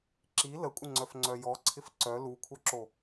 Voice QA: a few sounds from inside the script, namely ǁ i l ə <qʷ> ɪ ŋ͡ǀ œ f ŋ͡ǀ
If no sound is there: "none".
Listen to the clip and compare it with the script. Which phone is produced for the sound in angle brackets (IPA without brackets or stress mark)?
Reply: kʷʼ